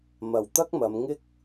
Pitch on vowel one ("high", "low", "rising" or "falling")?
low